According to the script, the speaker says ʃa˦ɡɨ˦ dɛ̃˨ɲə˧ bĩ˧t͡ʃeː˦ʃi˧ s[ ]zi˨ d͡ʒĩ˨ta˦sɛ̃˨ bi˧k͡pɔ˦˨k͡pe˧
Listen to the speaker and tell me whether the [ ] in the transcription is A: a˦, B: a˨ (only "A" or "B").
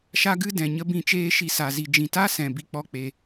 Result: B